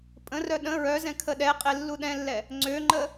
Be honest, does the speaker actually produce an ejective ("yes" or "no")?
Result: yes